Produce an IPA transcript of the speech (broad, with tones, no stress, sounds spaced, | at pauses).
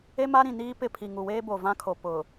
e˦ m a˦ ɾ ĩ˨ n iː˦ p ɪ˦˨ pʰ i˨ ŋ u˨ w eː˦ b o˨ v ã˦ kʰ o˨ p ʊ˨